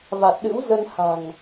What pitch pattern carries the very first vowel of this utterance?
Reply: low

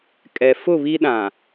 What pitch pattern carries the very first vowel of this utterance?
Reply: low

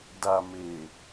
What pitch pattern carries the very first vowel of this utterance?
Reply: low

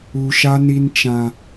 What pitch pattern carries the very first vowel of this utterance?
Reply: high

